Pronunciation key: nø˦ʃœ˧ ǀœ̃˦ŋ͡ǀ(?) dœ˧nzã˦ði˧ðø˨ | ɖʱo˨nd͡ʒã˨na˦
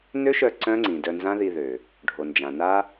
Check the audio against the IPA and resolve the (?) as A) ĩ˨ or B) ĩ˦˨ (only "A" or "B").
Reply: A